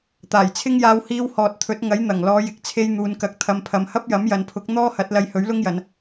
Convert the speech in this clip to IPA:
t̪ aː˨˩ j t͡sʰ ɪ˥ ŋ j aː˧ w h iː˧ w h ɔː˨ t̚ t̪ʰ ɵ˨˥ t̚ ŋ ɐ˨˥ j n̪ ɐ˨˩ ŋ l ɔː˨˧ j ɪ˨ k̚ t͡sʰ e˧ j n̪ uː˨ n k ɐ˨ k̚ t̪ʰ ɐ˨˧ m pʰ ɐ˨ m h ɐ˥ p̚ j ɐ˨˥ m j ɐ˨˧ n pʰ ʊ˨˥ k̚ n̪ ɔː˥ h ɐ˨˥ t̚ l ɐ˧ j h ɵ˨˥ ɥ l ʊ˥ ŋ j ɐ˨˧ n

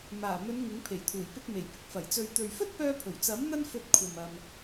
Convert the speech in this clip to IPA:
m aː˨˩ m ɵ˨˧ n ŋ ɪ˨˥ ŋ pʰ e˨˩ j t̪ʰ uː˨˩ j p ɪ˧ k̚ m e˨˩ j p ɪ˧ k̚ f ɐ˨˩ j t͡s ɵ˨ ɥ t̪ ɵ˨ ɥ f ɵ˥ t̚ p œː˧ pʰ ɵ˨˩ ɥ t͡s ɐ˨˥ m n̪ ɐ˥ n f ɵ˧ t̚ kʷʰ ɐ˨ m ɐ˧ m

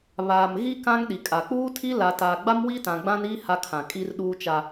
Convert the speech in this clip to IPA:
β aː˨ m ɣ i˦ k ã˦ ŋ ɗ i˨ kʼ a˨ k͡p uː˦ tʰ i˦ l a˨ t aː˨ ɡ͡b a˦ m w i˦ t ã˨ ɡ͡b ã˦ n i˦ h a˦ kʰ ã˨ kʼ i˦ r ɗ uː˦ t͡ʃ a˦

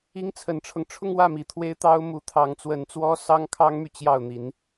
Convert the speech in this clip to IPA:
i˥ ŋ t͡sʰ ə˧˥ n ʈ͡ʂʰ ɤ˧ ŋ ʈ͡ʂʰ ʊ˥˧ ŋ w ä˥˩ m i˨˩ t̪ʰ w e˥ ɪ̯ t̪ ɑ˥ ʊ̯ m u˧˥ t̪ʰ ɑ˧˥ ŋ t͡s w ə˧˥ n t͡s w ɔ˥ s ɑ˥ ŋ kʰ ɑ˥ ŋ m y˨ t͡ɕ j ɑ˥˩ ʊ̯ n̪ i˧˥ n

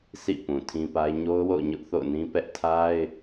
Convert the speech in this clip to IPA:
sʰ ḭ˦˨ p ũ˨ tʰ ĩ˦ p a˦ ɪ̯ ɲ o˦ ʊ̯ w o̰˦˨ ʊ̯ ɲ ʊ˦ ʔ θ o̰˦˨ ʊ̯ n ĩ˦ p ɛ˦ ʔ tʰ a˦ ɪ̯

